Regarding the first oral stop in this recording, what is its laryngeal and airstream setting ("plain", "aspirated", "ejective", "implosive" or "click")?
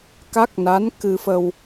plain